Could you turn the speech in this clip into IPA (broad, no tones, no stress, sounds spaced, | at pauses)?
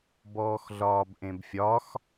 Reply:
b ɔː x ɮ ɒː b ʔ ẽ b fʲ ɒ x